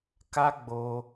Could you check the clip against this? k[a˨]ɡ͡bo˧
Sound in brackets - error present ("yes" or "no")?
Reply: yes